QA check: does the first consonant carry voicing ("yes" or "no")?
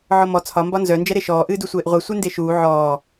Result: yes